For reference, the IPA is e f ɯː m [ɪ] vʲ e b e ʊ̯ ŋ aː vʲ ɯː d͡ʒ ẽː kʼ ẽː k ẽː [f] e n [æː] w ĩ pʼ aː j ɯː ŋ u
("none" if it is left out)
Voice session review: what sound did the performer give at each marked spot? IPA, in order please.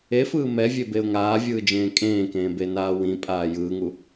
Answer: ɛ, b, aː

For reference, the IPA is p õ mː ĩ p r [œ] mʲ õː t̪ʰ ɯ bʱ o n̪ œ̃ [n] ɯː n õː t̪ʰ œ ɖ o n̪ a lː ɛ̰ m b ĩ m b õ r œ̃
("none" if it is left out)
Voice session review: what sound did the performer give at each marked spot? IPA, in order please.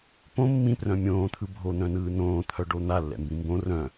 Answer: œ̃, n

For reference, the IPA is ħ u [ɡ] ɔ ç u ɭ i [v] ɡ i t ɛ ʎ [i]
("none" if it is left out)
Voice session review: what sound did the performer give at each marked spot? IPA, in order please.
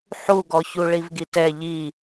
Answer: ɡ, v, i

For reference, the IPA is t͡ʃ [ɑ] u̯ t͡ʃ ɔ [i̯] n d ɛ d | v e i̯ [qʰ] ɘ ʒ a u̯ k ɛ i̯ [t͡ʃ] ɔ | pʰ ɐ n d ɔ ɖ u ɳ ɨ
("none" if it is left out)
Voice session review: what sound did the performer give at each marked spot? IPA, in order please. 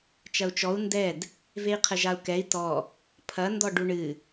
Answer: ɐ, u̯, qʰ, t

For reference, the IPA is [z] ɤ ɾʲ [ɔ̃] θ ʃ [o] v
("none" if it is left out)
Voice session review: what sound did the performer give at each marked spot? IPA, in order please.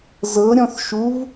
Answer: z, ɔ̃, u

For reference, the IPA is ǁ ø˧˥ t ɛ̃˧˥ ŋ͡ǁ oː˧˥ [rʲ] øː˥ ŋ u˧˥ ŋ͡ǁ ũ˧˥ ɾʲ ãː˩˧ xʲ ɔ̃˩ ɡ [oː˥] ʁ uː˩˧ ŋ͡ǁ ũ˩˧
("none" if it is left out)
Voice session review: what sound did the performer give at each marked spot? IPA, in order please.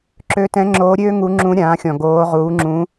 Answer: ɾʲ, oː˩˧

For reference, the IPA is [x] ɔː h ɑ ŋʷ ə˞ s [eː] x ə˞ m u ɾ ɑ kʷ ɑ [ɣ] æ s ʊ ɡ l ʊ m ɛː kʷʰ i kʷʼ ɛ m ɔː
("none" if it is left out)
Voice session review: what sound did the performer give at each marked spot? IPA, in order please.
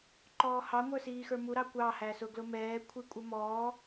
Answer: ǃ, iː, h

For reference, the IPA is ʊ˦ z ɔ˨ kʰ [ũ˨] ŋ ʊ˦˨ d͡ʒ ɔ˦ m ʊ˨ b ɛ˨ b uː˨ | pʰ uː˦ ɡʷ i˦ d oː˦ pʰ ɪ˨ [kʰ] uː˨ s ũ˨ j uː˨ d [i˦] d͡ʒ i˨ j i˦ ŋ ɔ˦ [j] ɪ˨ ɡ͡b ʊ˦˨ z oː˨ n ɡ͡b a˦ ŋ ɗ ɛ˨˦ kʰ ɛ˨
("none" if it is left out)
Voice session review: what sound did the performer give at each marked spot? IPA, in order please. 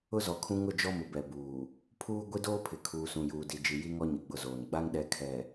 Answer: ũ˦, kʰ, i˨, ɲ

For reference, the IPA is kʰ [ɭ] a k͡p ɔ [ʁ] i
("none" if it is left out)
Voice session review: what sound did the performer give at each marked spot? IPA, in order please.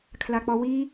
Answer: l, w

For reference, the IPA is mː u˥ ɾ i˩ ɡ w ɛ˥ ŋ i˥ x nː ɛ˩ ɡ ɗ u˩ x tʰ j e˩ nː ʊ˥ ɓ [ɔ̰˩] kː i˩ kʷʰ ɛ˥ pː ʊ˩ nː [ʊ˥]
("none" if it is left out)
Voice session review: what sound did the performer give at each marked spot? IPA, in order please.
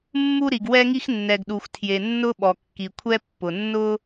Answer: ɔ˩, ʊ˥

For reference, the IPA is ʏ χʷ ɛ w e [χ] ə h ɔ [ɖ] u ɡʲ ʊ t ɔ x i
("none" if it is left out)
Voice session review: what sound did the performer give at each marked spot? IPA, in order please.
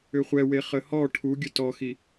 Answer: χ, ʈʰ

